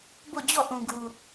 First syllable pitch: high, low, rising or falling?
falling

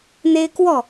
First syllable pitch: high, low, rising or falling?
high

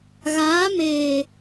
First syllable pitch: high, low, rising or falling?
rising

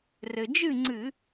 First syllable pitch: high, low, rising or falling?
low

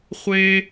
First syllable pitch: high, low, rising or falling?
high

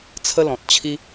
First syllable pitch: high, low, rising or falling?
high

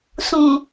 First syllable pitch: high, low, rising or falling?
low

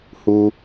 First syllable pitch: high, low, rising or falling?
low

